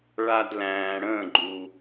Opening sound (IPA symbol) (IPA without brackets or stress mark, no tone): ɭ